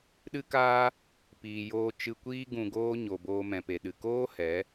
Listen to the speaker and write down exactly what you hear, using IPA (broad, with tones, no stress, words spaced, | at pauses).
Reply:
ɗɨ˦kaː˦ | piː˨joː˧ t͡ʃɨ˧kʷiː˦ ɡũ˧ɡoː˦ ɲo˨boː˧ mɛ̃˨pe˨ ɗɨ˨ koː˦ hɛ˨˦